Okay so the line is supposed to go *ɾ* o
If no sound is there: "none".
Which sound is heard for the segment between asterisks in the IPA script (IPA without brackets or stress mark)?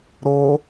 ɾ